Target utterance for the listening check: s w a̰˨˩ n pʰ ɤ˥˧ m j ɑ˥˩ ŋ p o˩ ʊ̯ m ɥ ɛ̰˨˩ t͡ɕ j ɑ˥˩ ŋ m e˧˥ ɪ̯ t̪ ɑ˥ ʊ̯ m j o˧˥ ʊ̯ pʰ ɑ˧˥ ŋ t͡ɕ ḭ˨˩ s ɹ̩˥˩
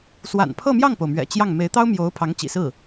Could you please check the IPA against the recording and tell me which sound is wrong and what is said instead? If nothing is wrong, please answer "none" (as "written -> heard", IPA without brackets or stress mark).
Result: none